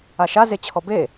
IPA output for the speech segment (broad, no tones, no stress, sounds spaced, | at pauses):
a ʃ a z e t͡ɕʰ ɔ b e